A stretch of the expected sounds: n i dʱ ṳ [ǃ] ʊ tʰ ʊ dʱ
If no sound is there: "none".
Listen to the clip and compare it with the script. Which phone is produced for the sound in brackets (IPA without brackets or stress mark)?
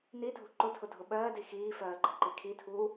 ǃ